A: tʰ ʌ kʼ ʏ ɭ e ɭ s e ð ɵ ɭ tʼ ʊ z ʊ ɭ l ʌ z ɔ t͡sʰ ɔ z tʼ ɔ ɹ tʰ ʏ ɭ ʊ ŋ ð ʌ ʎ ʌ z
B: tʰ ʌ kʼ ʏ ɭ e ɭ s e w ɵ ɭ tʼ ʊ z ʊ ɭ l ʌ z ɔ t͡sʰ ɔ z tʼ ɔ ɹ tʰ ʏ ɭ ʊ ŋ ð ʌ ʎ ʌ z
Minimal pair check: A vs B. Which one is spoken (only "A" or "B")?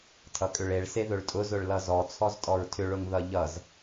A